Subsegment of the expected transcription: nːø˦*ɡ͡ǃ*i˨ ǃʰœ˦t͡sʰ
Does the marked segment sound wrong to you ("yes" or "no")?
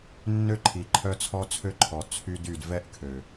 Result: yes